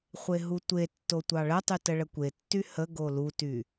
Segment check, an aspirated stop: absent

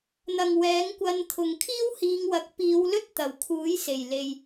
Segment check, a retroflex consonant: absent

